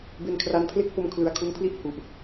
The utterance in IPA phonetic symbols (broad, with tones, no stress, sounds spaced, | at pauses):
b e˧ n kʰ r a˦˥ n pʰ l e˥˩ k̚ p o˧ m kʰ l ɯ˨˩ a̯ kʰ u˧ n pʰ l i˥˩ ʔ h u˨˩ ʔ